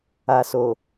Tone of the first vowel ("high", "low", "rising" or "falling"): low